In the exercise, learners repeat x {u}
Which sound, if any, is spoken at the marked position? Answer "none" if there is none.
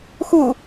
u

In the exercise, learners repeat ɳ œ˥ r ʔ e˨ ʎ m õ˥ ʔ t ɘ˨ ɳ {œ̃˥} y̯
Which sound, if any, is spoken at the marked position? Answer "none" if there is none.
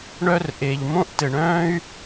œ̃ː˥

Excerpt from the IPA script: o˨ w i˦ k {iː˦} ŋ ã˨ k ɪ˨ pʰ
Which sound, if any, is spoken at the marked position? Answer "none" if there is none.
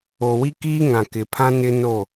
iː˦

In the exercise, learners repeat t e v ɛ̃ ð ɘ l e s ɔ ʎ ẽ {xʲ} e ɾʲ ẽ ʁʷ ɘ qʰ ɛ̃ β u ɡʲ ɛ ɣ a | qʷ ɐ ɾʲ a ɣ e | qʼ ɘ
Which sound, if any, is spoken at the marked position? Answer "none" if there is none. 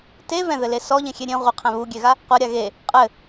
xʲ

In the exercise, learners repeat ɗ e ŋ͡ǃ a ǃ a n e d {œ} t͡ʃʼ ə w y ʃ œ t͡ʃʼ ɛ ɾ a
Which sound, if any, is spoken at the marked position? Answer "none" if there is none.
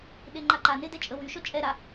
ɛ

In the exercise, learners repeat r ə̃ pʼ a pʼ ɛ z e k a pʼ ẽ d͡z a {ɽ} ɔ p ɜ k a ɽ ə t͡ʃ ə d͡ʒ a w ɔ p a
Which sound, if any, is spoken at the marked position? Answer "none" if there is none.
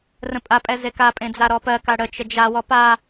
ɾ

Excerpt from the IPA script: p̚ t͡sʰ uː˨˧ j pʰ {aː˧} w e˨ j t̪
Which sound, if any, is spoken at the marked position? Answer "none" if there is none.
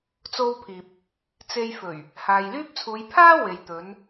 aː˥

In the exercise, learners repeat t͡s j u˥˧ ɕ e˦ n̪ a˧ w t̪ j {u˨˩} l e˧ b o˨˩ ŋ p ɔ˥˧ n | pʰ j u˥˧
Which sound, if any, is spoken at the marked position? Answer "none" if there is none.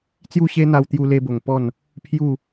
u˧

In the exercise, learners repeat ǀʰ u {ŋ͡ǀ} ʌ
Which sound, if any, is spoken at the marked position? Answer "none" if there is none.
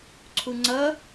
ŋ͡ǀ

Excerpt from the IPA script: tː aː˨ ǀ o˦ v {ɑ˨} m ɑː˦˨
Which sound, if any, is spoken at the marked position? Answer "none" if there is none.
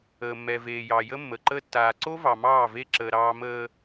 ɑ˨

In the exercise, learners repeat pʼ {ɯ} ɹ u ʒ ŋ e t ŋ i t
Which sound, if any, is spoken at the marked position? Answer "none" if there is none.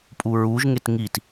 u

